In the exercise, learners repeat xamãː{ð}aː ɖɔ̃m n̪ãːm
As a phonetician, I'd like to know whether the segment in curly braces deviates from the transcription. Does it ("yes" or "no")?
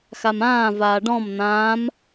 yes